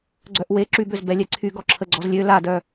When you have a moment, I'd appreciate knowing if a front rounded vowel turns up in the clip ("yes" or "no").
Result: yes